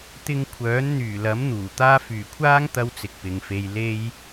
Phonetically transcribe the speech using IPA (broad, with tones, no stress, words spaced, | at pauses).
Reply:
t̪ɪ˧ŋkʷʰœː˨˥n n̪yː˨˩lɐ˨˥m n̪uː˨˩t̪aː˥ fyː˨˩kʷʰaː˥ŋ t̪ɐ˥wt͡sɪ˨k̚pɪ˨ŋfe˧j le˥j